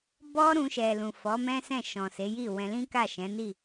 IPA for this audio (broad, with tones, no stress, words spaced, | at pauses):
bɔ˦ɾũ˧ʃɛ˨ lũ˨fɔ˨˦mɛ̃˦sɛ̃˦˨ ʃɔ̃˨ se˨˦ji˦˨ wɛ̃˧lĩ˦ka˦˨ ʃɛ̃˨˦ni˦˨